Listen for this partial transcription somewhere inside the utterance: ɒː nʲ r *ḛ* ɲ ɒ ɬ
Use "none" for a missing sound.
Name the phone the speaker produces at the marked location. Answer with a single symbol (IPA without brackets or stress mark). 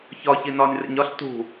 ḛ